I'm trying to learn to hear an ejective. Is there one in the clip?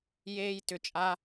yes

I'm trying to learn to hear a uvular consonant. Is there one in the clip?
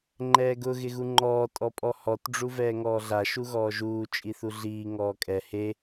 no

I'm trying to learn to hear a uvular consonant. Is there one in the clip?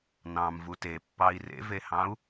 no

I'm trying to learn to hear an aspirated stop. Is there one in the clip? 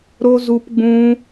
no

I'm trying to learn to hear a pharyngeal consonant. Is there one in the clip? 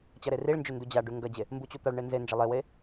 no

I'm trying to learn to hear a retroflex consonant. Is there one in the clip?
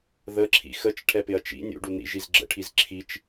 yes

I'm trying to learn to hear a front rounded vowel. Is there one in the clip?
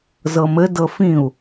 no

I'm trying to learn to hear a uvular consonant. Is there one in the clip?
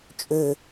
no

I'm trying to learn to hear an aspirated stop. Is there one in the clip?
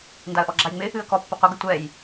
no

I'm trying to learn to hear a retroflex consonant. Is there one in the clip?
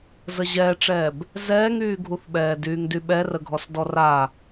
yes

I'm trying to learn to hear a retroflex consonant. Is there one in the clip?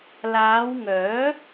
no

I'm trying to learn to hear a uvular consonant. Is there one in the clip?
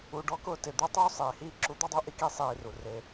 no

